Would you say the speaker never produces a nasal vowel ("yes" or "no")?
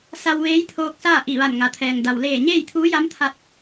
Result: yes